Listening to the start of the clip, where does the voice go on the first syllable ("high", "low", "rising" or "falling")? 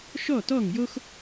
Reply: falling